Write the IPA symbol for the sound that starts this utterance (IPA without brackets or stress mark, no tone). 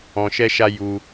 ɔ̃